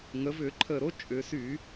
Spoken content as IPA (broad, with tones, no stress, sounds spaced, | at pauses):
ŋ ə˩˧ v ʏ˧˩˧ ǃʰ ə˨˩ ɾ o˦ t͡ʃʼ ʏ˩˧ s y˧˩˧